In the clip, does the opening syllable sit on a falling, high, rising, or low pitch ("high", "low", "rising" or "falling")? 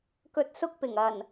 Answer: low